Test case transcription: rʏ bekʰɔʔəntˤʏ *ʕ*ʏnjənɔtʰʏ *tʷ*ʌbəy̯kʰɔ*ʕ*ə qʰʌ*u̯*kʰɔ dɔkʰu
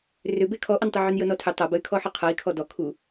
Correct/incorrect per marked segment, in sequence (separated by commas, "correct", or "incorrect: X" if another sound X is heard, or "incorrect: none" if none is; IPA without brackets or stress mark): correct, incorrect: tˤ, incorrect: ħ, incorrect: i̯